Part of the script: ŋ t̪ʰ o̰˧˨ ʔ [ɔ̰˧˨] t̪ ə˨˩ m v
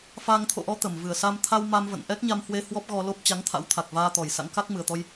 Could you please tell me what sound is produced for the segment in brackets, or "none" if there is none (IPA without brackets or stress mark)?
ɔ˨˦